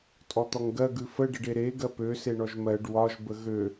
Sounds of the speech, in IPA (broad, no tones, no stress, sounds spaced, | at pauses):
tʼ ɔ t̪ ɔ ŋ ɡ ɜ ɡ ʉ f ə ɖ ə ɖ e ɾ e ɡ ɜ p ø s e ɳ ɔ ʒ m ɜ ɖ w ɒ ʒ b ə ɣ ø